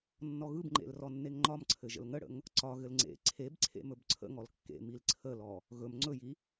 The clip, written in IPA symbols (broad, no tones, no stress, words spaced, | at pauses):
nːɔɣɯbŋ͡ǃḛl rɔnːeŋŋ͡ǃɒmǀʰɘ ʒə̰lŋəɽə̰ŋ | ǀɒɣɘl ŋ͡ǀḛ ǀʰebǀʰḛ mɵbǀʰə̰ŋɔl kːḛ milǀʰəlɔ | ɣɵm ŋ͡ǀɵji